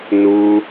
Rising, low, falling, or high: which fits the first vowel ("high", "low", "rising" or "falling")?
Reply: high